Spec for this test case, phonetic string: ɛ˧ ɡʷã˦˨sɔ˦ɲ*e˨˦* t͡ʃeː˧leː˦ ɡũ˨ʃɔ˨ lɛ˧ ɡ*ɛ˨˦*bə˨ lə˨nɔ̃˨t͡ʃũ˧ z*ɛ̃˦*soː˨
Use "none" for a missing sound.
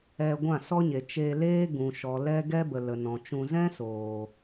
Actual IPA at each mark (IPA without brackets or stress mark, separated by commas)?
e˨, ɛ˦, ɛ̃˦